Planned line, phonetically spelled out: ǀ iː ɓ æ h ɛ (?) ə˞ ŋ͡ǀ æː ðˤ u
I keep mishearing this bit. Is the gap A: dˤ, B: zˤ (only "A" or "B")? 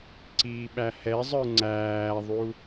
B